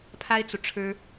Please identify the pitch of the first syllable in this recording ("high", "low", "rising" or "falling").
high